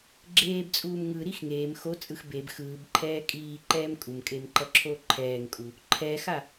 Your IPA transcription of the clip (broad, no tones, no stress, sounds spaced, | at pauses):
ɡ͡ǁ eː b t͡sʼ uː m ŋ ɯ ɾ i x ŋ eː m x o t͡sʼ ɯ x b e b x ɯː b ǃʰ ɛː kʼ iː ǃ ɛː m kʼ u m kʼ e m ǃ ʌ ǁʰ o ǃʰ ɛː ŋ kʼ u | ǃʰ ɛ x a